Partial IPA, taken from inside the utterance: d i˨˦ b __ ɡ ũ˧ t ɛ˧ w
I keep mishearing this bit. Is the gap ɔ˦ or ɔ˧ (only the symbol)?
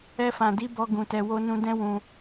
ɔ˧